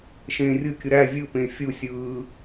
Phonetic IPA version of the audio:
ʃẽːrʲɯkʲɯ ɾæ vʲɯpẽ fʲusʲɯː

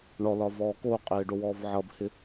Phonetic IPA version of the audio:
ɳɔlɒvɔː koqʼɪːɖowɔːv ʕʌbhɪ

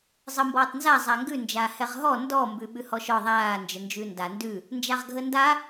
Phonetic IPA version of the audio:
zˤəːmbɔːtˤnza zˤaŋɡʉ nd͡ʒaːhɛʁɦɔ ndɔ mbʉɓʉhɔʃɔ ðˤaː nd͡ʒənd͡ʒʉːnda ndʉ | nd͡ʒaʁɡʱənda

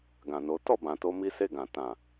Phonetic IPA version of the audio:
ɡã˨no˨˦ tɔ˦˨bã˨to˧ mi˦se˦˨ɡã˨ tã˨

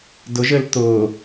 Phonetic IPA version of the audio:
dʊʒ ɘl t̪ʊː

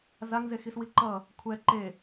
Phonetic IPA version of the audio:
zaŋze xiswiǃʌ | kʷʰɛ ǃe

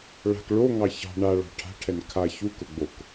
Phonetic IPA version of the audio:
ɭa̤k ɭoŋɑ çɑ̤ ɳaɭɑ̤ ʈʰa̤ʈʰɛn kʰa çukʊɡ͡bok

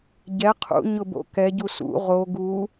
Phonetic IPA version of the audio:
ɟɛ qʰṵ ɲʊbo̰kɛ ɟusṵ ʁo ɡu

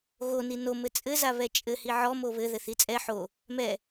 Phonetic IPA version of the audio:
ɣoni no mɘt͡sʼɘza βɛt͡ʃʼɘ hiʕɔmo βɘ ðɘθit͡sʼɛ ħo | mɛ

